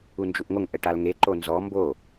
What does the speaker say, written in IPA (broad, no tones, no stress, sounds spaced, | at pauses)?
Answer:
u n d͡ʒ u ʔ ŋʷ ɤ ŋ ʔ ɛ ʈ a l ŋ e ǃ o n z ɔ m b o